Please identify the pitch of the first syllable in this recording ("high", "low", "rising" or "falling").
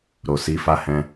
low